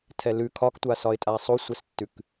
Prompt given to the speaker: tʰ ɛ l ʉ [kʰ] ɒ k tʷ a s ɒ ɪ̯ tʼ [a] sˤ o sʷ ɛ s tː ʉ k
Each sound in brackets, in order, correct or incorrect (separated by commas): correct, correct